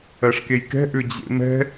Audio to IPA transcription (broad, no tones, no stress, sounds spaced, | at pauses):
ɜ ʂ k e j k ɛ̤ ʔ ʏ d͡ʑ ḛ m ɛ̤